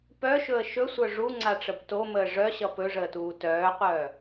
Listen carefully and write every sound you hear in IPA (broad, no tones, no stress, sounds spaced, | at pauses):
p œ ʃ ɵ ə̯ ʃ ɵ sʷ œ ʐ u ŋ͡ǀ a ʈ͡ʂ ə b t o m əː ʐ œ ɕ ʌ p ɵ ʐ əː t uː t œː qʷ œː